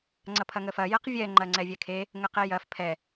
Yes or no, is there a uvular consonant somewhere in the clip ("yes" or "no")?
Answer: yes